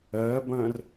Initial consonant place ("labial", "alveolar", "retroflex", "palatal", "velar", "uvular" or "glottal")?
labial